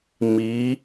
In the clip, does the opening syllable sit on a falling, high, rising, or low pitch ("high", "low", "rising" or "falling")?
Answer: rising